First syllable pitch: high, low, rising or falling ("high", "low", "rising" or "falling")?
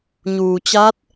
low